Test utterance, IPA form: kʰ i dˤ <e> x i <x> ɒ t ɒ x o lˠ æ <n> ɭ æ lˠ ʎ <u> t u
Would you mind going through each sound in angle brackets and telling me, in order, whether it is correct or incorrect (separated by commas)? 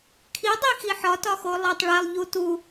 incorrect, incorrect, incorrect, correct